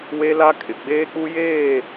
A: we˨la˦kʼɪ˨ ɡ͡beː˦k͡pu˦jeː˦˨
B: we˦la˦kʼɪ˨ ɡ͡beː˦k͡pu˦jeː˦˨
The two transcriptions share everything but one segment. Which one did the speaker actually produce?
B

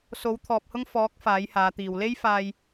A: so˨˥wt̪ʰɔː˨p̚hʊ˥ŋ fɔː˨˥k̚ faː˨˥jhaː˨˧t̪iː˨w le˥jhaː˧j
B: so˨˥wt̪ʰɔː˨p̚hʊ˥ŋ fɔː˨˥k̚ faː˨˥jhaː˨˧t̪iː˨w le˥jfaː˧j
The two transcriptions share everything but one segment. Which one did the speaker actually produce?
B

